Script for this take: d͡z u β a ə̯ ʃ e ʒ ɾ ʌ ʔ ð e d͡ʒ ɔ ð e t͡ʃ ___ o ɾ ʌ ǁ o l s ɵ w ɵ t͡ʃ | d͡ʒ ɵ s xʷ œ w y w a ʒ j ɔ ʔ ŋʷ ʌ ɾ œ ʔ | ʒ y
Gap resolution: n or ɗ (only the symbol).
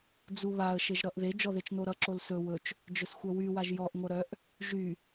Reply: n